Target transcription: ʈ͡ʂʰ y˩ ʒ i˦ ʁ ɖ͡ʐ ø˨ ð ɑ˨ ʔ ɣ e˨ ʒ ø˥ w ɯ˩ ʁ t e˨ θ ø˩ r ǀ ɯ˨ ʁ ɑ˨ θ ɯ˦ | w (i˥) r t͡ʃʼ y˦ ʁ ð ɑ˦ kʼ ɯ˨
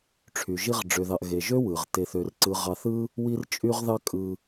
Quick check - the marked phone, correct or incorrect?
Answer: incorrect: i˦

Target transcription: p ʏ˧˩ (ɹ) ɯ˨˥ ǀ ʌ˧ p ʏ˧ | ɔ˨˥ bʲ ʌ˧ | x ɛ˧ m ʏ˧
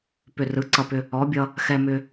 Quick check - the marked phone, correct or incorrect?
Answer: incorrect: r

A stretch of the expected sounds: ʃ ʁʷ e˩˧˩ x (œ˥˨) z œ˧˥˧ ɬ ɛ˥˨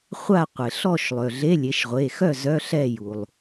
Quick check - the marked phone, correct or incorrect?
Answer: correct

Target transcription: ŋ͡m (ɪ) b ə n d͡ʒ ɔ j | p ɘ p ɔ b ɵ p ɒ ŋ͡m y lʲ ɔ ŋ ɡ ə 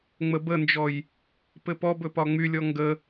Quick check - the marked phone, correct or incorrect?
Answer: incorrect: ə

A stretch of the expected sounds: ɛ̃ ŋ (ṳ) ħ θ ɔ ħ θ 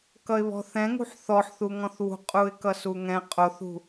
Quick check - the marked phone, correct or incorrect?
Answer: correct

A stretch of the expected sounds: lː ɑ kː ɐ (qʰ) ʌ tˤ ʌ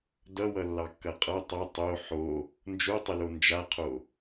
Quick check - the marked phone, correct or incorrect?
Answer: incorrect: qʼ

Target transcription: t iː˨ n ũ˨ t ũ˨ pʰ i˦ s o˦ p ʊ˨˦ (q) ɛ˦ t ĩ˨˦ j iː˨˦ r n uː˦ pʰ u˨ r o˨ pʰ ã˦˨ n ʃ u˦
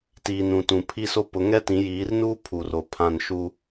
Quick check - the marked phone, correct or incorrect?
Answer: incorrect: ŋ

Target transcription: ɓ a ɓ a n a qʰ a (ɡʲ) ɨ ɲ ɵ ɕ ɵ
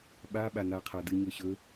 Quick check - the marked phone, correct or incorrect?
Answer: incorrect: d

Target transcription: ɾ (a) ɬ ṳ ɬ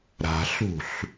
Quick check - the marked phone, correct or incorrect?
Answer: incorrect: a̤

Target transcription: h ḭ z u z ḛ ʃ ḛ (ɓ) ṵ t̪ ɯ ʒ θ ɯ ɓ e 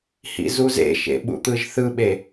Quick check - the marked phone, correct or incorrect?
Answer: correct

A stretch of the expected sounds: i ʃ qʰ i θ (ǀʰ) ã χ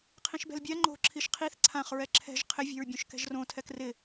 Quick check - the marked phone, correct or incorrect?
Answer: correct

